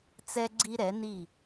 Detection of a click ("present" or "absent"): present